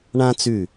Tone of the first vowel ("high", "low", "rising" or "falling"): high